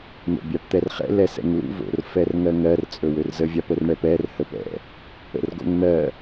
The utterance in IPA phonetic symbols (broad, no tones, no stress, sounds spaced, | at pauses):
n̪ o̰ bʲ a p t̪ ɛ r χ ɛ̰ l ɛ s ɛ̰ ŋ l ṵ v o̰ r f ɛ r ŋ ɜ ŋ ɜ r t͡sʼ ɵ w ø r z ə vʲ a p ə r ɳ ɛ p ɛ r h ə p ɛ̰ | ə̰ r ɡ o̰ ŋ n̪ ɜ